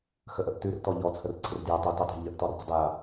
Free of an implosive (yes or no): yes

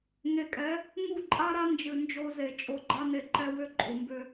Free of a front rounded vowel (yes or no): no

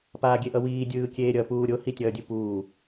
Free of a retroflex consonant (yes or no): yes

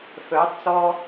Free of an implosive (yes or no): yes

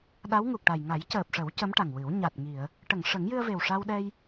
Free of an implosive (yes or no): no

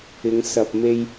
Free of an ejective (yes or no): yes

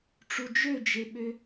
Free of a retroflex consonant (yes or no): no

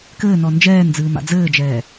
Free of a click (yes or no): yes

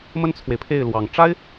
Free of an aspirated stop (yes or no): no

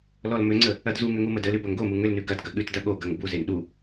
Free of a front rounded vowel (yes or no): no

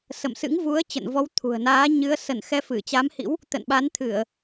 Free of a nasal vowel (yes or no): yes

